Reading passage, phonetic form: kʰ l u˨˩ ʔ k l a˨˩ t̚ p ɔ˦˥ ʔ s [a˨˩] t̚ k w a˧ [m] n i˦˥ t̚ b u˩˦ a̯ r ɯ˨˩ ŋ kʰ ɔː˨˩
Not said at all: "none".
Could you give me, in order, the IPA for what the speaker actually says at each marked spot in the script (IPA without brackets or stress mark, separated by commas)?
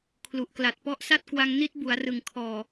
a˥˩, ŋ